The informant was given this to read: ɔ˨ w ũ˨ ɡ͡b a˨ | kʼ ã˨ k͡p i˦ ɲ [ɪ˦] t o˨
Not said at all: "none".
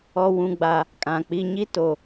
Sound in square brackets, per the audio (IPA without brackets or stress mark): i˦